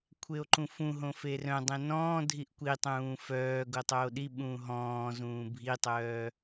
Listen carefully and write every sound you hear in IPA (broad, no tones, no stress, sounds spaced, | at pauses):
kʷʰ e o̯ ǃ ũ f ũ ɦ õ f e r œ̃ dˤ ẽ n ɔ̃ː dʱ i ʔ kʷ i tˤ ũː f œː ɡ o tˤ oː ɗ i ɓ ũː ɦ ɔ̃ː z ũː bʱ i tˤ œː